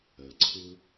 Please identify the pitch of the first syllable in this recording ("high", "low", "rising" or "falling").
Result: low